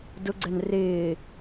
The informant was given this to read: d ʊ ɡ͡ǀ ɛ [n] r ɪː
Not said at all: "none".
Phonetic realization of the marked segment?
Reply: n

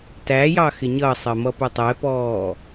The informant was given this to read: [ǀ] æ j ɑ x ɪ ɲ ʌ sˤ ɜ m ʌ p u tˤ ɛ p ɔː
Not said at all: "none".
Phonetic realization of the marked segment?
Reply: t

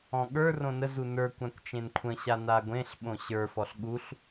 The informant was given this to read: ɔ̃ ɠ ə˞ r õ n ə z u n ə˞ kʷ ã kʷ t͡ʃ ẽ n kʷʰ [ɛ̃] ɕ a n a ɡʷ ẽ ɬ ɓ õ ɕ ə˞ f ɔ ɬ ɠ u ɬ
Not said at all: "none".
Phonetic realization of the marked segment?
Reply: ə̃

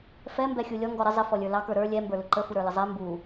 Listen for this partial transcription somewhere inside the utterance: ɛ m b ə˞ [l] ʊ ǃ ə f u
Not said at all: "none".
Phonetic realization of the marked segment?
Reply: l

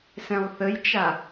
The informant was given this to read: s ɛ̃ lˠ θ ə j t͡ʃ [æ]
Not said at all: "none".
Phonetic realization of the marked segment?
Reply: a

